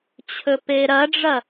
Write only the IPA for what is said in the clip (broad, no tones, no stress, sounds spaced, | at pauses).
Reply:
t͡ɕʰ ɵ p e ɾ ɐ ɖ͡ʐ ɐ